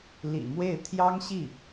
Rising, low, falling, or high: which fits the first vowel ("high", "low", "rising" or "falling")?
low